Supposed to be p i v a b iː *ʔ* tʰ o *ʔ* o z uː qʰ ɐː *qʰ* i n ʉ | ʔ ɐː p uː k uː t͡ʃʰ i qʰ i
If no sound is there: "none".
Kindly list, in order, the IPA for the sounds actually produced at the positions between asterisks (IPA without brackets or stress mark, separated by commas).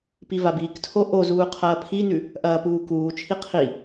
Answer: k, ʔ, pʰ